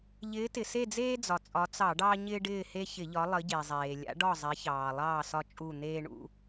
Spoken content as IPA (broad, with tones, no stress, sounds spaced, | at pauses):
ʎ ɪː˨˦ t ɪ˩ s e˦˨ d͡z eː˦ d͡z ɒ˩ t͡sʼ ɒ˨˦ t͡s ɑ˧˩˧ ɖ ɑ˦ ɲ ɪː˦ ɖ ɪː˦˨ h e˦ ç ɪ˧˩˧ ʎ ɒ˨˦ lˠ ə˨˦ ɟ e˩ zˤ eː˩ lʲ a̰˨˦ ɖ ɒ˦˨ zˤ e˨˦ ç ɑː˩ lˠ ɑː˦˨ s ɒ˦ t͡ʃʼ u˦˨ n̪ eː˦ ɳ ṵ˦